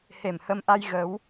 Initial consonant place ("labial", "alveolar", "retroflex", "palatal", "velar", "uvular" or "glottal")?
glottal